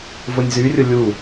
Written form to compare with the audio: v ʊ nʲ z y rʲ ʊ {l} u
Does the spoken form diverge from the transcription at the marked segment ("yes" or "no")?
yes